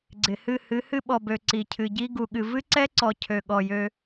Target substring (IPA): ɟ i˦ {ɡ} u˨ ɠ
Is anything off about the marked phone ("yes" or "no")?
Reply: no